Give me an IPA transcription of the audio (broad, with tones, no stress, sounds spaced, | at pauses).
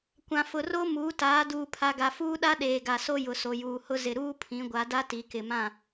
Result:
kʷ ã˨ f ʊ˨ r o˦ m uː˨˦ t aː˨˦ d uː˨ pʰ a˨ ɡ a˨ f uː˦ ɗ a˦ ɗ eː˨ ɡ a˨ s o˦ j ʊ˨ s o˨ j uː˨ h ʊ˦ z ɪ˨ ɾ uː˦ pʰ ĩ˨˦ ɡʷ a˨˦ d a˦ t i˨ k ɪ˨ m ã˦˨